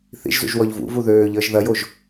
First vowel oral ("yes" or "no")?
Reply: yes